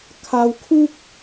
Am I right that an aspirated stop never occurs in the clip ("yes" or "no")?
no